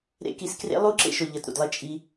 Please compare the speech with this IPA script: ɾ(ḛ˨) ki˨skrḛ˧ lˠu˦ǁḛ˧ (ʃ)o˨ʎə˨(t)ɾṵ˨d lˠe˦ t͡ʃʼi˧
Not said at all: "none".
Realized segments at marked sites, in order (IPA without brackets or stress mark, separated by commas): ḛ˧, ʃ, t